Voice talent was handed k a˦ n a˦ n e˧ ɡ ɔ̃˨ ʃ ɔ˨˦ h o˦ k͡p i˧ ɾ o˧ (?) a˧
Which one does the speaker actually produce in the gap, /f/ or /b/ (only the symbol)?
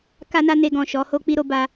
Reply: b